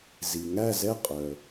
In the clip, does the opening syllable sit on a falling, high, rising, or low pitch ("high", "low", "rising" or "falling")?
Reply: low